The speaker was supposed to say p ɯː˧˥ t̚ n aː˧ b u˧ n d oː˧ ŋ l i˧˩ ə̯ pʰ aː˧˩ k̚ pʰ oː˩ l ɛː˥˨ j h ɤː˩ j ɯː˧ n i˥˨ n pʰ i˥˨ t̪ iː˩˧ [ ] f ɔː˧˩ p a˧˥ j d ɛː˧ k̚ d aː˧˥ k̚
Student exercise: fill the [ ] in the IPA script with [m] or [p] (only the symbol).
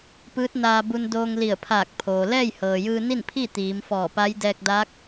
m